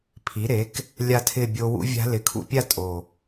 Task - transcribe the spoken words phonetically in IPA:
pʰi˩˥ɾe˩˥k | lʲa˥˧tʰɪ˥˧bʲo˦˥ wṵ˦˥vʲa̤˦˥ lɪ˨˩kʰṵ˥˧pʲa˥˧ tʼo˨˩

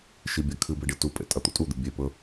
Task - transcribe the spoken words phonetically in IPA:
ʃibʲakʰɨbe ɖitupʼḛ tʼɐt̪o̰tʼud̪ɨ bʲepɵ

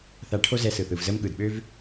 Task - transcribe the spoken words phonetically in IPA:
θa˧ʈʰo˥zɛ˧sɯ˩ θɯ˩vzə˥m ɠɯ˩dɓø˥v

